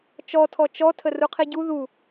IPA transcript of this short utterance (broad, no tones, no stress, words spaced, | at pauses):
t͡ʃɔtʰɔ t͡ʃɔ tʰəruqʰiɟu ðu